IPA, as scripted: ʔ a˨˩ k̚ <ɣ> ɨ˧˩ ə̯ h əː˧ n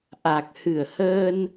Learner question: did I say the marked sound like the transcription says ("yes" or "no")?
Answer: no